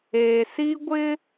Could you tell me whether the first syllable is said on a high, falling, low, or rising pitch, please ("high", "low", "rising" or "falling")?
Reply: low